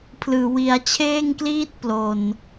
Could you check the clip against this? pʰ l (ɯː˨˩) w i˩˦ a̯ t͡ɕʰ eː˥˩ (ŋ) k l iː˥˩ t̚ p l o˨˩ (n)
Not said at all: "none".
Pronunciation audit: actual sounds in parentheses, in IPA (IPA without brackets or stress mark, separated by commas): ɯː˨˩, ŋ, n